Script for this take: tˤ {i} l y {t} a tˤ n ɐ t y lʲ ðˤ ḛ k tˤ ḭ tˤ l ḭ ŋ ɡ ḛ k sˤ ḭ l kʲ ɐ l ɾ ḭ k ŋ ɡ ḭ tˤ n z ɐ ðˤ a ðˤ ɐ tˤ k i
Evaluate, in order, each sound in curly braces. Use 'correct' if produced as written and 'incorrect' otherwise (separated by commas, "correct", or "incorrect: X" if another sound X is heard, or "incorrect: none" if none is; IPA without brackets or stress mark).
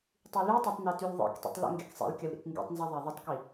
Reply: incorrect: y, incorrect: tˤ